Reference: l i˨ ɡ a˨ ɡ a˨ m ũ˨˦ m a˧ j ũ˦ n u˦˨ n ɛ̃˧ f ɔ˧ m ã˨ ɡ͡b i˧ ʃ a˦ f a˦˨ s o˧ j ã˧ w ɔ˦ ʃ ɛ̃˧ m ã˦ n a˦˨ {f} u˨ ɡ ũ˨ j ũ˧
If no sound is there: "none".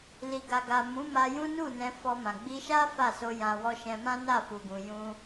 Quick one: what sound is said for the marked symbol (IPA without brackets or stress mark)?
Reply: f